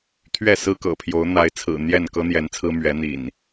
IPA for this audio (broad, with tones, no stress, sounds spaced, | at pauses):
t̪ʰ ɥ ɛ˥˨ s ɹ̩˦ k ɤ̰˨˩ pʰ j o˨˦ ʊ̯ n̪ a˨˦ ɪ̯ t͡sʰ ɹ̩˨˩ n̪ j ɛ˥˨ n k ɤ˦ n̪ j ɛ˨˦ n t͡sʰ ɹ̩˦ m ɥ ɛ˨˦ n̪ ḭ˨˩ n